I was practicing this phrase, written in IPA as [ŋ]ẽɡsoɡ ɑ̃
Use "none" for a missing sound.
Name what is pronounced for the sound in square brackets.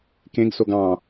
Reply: k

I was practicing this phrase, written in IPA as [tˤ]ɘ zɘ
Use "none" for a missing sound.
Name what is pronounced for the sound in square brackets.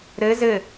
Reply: ɾ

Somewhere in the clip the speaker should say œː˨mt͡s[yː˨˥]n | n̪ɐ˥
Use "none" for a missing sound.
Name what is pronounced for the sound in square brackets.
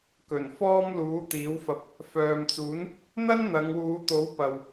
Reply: uː˨˥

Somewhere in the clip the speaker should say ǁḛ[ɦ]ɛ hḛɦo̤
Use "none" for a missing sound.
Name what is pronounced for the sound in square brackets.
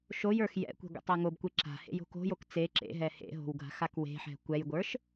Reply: ɦ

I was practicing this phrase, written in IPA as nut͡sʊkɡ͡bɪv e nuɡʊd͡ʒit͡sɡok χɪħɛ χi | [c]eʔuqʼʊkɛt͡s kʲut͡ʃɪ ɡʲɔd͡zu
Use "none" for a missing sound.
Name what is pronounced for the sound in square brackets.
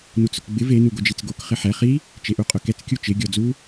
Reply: t͡ʃ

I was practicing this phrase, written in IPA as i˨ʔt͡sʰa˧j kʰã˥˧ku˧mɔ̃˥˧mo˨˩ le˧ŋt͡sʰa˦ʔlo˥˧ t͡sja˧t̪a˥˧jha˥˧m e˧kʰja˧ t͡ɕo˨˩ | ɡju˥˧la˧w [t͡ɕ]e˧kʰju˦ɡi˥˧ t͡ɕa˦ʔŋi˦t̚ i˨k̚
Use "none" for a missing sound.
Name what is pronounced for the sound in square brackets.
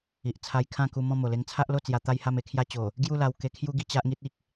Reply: k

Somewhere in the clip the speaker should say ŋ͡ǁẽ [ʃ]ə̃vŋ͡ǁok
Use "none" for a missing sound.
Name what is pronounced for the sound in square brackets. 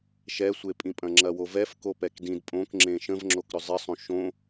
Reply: ʃ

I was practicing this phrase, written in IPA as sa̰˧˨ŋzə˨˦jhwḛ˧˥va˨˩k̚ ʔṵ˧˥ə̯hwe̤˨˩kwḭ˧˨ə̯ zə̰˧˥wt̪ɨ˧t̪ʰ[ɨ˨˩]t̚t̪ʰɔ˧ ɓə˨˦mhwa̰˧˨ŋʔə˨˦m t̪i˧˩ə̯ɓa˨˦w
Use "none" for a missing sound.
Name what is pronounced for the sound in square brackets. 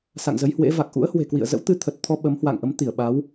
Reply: ə˨˩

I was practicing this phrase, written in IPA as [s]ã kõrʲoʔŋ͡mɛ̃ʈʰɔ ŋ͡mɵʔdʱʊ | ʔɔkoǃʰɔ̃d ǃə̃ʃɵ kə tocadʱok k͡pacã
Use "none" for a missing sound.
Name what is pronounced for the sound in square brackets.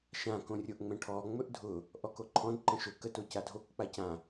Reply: ʃ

